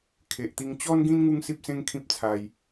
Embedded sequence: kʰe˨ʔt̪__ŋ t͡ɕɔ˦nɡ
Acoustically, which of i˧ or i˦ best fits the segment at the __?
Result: i˧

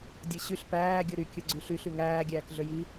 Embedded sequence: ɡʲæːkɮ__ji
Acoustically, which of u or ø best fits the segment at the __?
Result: ø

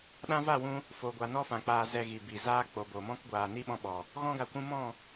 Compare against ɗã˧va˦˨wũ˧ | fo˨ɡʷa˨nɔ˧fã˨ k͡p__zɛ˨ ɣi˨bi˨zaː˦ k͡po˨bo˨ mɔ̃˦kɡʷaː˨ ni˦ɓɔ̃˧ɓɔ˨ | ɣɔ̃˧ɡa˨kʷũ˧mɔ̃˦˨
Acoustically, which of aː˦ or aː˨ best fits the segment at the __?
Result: aː˨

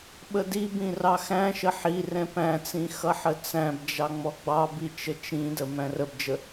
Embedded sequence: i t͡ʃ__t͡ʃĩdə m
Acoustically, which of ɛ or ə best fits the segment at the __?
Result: ə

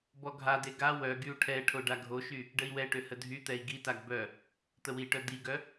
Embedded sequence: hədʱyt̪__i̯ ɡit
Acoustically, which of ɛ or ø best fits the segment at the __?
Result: ɛ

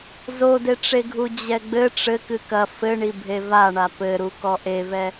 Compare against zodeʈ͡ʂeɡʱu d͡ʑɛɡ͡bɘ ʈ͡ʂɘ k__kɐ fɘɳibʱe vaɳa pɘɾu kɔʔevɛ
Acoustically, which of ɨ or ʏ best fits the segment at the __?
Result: ɨ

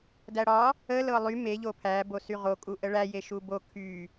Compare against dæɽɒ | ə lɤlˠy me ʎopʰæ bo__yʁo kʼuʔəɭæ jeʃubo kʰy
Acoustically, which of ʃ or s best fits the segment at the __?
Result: s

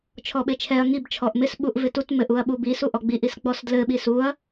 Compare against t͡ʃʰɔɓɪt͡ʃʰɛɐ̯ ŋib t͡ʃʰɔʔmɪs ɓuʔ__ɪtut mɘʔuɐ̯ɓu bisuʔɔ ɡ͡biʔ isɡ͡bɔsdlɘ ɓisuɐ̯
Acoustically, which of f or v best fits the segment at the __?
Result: v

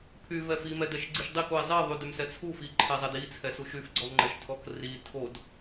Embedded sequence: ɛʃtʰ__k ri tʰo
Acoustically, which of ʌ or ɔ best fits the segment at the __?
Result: ɔ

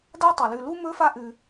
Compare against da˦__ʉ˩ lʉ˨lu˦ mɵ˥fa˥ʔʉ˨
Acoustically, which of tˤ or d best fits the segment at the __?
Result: tˤ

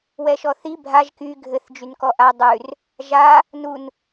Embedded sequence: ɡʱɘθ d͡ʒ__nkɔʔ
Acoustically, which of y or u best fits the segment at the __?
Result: y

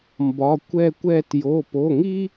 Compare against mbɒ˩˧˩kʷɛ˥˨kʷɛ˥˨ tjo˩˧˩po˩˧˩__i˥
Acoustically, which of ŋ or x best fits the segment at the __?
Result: ŋ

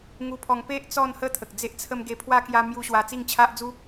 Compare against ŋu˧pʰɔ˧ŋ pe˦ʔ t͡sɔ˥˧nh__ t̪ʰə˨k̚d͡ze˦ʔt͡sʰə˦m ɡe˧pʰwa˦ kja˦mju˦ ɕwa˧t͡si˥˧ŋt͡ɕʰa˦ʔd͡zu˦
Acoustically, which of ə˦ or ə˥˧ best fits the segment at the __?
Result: ə˥˧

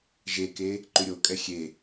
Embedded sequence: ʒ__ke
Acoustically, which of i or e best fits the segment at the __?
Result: e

